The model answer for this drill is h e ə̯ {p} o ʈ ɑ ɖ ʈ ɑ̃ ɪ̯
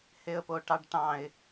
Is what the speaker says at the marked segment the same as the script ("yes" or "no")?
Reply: yes